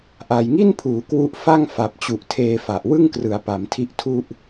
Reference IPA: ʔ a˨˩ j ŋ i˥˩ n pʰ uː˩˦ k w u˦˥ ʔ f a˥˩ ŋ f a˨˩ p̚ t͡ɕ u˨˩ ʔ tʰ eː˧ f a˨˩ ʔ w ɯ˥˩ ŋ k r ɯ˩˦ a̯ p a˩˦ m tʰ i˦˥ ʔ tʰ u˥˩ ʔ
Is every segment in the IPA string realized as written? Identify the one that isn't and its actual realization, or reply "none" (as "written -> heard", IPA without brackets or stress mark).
none